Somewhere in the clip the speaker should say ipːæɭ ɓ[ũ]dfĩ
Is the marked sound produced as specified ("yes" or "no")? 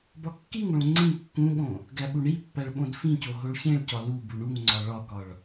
no